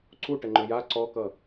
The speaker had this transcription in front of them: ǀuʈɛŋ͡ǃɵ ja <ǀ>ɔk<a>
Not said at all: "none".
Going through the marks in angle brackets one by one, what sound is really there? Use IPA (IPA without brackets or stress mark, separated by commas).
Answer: ǀ, ʌ